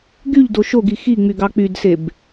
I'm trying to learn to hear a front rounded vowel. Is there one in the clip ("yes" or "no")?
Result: yes